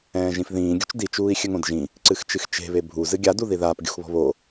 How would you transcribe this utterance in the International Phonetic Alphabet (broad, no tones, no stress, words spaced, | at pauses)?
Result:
ɛ̃ːʒĩfðĩːɡʲṳt͡ʃ dit͡ʃuːi̯ xʲɘŋõdʒĩ | ǀɨxt͡ʃɨxt͡ʃe̤βe bʱuzɨ ɡʲaduði ðaːpɡʲṳxβɔ̤ βo